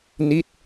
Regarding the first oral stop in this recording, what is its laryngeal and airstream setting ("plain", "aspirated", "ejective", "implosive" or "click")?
plain